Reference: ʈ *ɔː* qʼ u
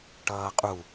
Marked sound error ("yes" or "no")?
yes